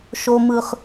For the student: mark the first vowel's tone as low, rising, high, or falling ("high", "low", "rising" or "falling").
low